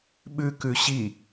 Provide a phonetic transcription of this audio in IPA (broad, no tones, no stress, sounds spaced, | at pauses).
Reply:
ɓ ʉ k ʉ ɕ i